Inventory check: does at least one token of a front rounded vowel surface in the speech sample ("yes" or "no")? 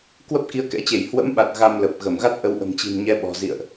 no